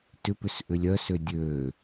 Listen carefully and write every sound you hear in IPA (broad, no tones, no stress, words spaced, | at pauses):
tʏpʏs ʔʏlʲœsø dʲø